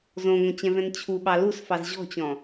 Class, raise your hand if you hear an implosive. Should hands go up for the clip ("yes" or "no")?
yes